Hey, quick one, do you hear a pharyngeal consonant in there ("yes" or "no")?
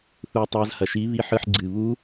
yes